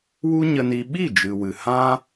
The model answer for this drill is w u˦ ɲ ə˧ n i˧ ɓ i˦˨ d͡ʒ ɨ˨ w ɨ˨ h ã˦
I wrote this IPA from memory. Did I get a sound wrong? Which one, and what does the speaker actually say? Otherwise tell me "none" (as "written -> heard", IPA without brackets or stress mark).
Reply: none